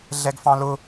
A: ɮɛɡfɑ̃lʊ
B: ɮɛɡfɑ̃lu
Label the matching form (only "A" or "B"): A